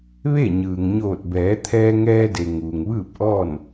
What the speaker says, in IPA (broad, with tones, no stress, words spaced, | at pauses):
ʋe˥˨ ɲɯː˩ŋ ɲoː˧˩t̚bɛː˩˧ t̪ʰɛː˧ŋɛː˧de˩ ŋuː˩ŋʋɯː˥˨p̚ʔɔː˥˨n